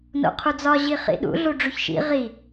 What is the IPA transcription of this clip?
n o̰ qʰ u d͡z ɒ ʑ i χ ḭ ɗ ṵ ɮ u ɖ͡ʐ u ç ʃ ḭ ʁ i

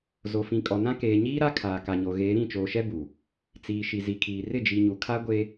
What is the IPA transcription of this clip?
z o˨ f ĩ˨ kʼ ɔ˨ n ã˦ k eː˨ ɲ iː˦ ɾ a˦ kʰ aː˨ k a˨ ɲ o˨ ɣ eː˨˦ ɾ ĩ˦˨ t͡ʃ oː˨ ʃ ɛ˦ b u˨ | t͡s iː˨ ʃ i˨ z i˨ kʰ iː˨ r ɪ˦˨ d͡ʒ i˨ ɲ u˨ kʰ a˦ ɡʷ e˦

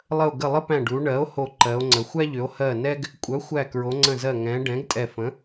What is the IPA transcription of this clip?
lˠ ə˧˩ o̯ ɡ ə˧˩ lˠ ə˦ p æ̃˧˩ ɖ u˩˧ ɳ ɜ˩˥ o̯ h o˧˩ ǃ ɜ˩˧ o̯ ŋ͡ǀ ə˩˧ xʷ æ˦ ʎ ʏ˩˧ o̯ h ɜ˧˩ n ɛ˦ ɡ | kʷʼ œ˩˥ xʷ æ˧˩ k ɹ o˩˧ ŋ͡ǀ ə̃˧˩ z ɜ˧˩ ŋ ɛ̃˩˧ ɖ ɛ̃˩˥ ɡ tʼ ɛ˧˩ f ə̃˩˥

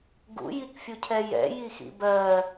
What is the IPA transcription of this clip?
ɡ ṵ j i k fʲ u cʰ ɛ j ɛ̰ j i x ḭ b ɜ

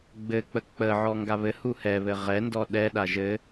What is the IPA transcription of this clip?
ɡ͡b ɘ k͡p ə k͡p ə ʕ ɔ ŋ ɡ a β ɘ h u h ɛ β ɘ ʁ ɛ n d ɔ ɗ ɛ ɗ a ʒ ɘ

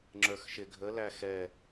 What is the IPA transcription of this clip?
ŋ͡ǁ ə˞ x ʃ ɪ ɡʱ ə l æ x ɛ

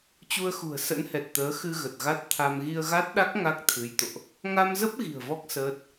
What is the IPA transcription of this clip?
t͡ɕ u˧ ə̯ x ṳ˨˩ ə̯ s ə̰˧˥ n h ɛ˨˩ t̚ t̪ əː˨˦ x ɨ˧ ɣ ə˨˩ t̚ ɣ a˦˥ t̚ t̪ʰ a˧ m ɣ i˧ ə̯ ɣ a˦˥ t̚ ɗ a˦˥ k̚ ŋ a˦˥ k̚ t̪ʰ ɨ˨˦ j t̪ o̰˧˨ ʔ | ŋ a˧ m z ə˦˥ p̚ ɣ i̤˨˩ ə̯ v ɔ˦˥ k̚ s əː˦˥ t̚

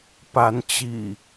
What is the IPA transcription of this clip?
p a˨˦ n t͡ɕ ḭ˨˩

